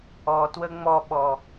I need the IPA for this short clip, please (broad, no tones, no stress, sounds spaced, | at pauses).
ɔ t w ə ŋ͡m ɔ ɓ ɔ